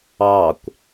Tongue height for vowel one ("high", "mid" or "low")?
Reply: low